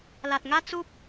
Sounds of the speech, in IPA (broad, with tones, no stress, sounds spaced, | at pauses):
l a˨ t̚ ŋ a˦ t͡s u˦ p̚